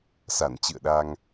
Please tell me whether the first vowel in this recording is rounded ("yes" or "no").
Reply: no